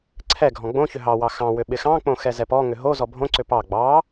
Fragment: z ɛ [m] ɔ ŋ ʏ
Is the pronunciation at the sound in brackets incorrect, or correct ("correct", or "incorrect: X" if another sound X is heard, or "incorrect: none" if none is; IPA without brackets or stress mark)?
incorrect: p